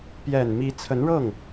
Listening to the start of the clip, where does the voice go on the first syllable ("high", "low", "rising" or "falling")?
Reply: low